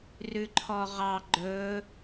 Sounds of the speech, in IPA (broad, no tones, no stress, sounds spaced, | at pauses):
r ʉ ǃʰ ɔ ʁ ɑ ɡ͡ǃ ɵ